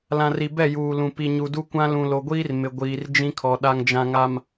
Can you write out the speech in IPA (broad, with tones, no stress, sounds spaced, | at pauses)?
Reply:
l ã˨ r i˨ b ɛ˦˨ j uː˨ l ũ˨ p i˨ ɲ u˨ d u˦ kʷ ã˦ l ũ˨ l o˨ ɡʷ iː˦ r m ɪ˨ ɡʷ iː˨ r d͡ʒ ĩ˦ kʰ ɔ˨ ɗ a˨ ŋ d͡ʒ ã˨ ŋ a˨ m